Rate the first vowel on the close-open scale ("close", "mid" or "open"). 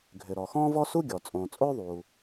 close